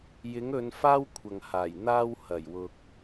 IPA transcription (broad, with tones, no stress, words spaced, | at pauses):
jɪ˨˥ŋɵ˨˧n faː˥wkʷʰɐ˨ŋhaː˨˩j n̪aː˧w hɐ˨˩jwʊ˨k̚